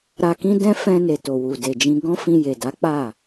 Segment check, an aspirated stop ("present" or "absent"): absent